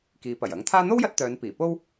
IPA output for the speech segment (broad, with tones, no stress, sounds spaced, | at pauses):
k iː˨˧ p ɐ˨˩ j ɐ˨˥ ŋ t̪ʰ aː˥ n̪ o˥ w j ɐ˧ t̚ t̪ œː˨˧ n p iː˨˩ p o˥ w